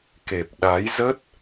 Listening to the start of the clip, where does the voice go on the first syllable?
low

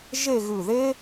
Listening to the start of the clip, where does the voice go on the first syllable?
falling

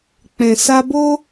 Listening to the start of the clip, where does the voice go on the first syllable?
low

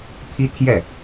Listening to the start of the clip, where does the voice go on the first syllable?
high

